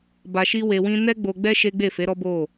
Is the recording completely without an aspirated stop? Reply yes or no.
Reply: yes